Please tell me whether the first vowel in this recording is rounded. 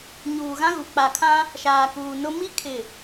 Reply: yes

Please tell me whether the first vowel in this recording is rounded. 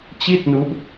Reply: no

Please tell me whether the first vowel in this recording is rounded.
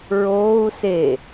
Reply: yes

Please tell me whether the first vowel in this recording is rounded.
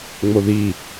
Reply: yes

